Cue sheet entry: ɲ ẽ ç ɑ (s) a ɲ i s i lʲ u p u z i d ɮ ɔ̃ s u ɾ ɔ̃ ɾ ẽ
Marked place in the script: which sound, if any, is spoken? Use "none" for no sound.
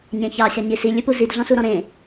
ɕ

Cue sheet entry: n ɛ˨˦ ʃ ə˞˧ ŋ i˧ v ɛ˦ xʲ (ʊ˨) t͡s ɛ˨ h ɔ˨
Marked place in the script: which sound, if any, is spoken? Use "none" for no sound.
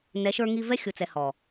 ʊ˨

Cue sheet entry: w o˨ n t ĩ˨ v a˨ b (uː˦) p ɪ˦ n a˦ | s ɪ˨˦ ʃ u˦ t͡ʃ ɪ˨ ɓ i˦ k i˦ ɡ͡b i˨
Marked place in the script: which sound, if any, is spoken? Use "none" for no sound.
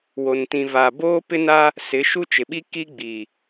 oː˦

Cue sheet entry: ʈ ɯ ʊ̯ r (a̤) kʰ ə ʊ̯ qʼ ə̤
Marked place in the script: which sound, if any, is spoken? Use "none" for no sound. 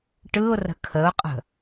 ə̤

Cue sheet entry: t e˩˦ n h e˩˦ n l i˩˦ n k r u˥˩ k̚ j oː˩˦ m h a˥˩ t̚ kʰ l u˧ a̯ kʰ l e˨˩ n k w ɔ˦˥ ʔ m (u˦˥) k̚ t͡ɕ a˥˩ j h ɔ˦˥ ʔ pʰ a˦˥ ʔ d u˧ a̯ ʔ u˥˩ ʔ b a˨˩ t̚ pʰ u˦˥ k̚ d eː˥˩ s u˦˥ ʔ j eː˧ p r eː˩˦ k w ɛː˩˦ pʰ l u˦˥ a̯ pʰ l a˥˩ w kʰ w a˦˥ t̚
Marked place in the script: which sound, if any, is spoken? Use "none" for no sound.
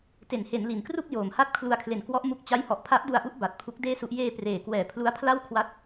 u˦˥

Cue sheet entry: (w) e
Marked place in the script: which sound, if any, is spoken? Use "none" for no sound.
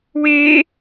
w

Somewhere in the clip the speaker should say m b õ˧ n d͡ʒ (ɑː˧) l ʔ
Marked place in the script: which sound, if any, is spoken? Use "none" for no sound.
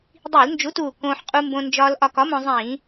ɒː˧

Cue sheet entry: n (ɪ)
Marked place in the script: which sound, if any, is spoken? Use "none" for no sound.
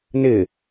ɪ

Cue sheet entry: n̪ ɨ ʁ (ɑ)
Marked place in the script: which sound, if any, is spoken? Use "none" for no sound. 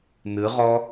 ɔ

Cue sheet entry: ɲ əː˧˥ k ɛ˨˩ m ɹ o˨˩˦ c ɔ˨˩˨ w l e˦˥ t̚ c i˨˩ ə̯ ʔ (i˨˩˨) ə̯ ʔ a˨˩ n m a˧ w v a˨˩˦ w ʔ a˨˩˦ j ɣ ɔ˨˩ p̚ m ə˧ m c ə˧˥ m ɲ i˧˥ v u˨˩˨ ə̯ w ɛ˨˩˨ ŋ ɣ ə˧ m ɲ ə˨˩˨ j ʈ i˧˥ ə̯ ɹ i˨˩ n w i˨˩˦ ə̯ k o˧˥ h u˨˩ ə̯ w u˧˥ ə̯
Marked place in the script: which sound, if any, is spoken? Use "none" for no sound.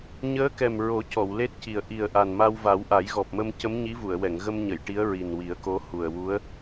i˨˩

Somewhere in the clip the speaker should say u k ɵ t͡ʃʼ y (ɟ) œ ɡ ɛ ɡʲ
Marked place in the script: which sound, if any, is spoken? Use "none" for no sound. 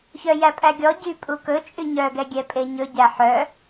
ɲ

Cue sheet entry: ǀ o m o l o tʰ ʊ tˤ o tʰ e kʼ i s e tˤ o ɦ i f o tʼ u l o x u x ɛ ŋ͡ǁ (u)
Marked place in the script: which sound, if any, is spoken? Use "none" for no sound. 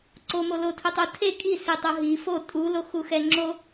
o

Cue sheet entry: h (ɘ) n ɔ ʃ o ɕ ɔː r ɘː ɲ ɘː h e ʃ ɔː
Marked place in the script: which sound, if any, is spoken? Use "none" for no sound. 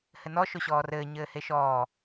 ɘ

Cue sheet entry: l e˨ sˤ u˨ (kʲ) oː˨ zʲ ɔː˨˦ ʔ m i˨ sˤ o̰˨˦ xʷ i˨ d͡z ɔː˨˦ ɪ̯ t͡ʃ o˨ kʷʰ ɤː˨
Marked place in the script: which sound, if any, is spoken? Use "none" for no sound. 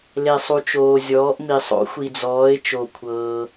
t͡ʃ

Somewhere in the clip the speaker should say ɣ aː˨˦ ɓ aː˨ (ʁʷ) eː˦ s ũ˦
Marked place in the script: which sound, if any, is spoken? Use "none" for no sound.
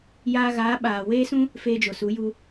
w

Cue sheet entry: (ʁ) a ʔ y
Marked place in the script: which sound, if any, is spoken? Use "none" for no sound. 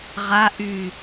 ʁ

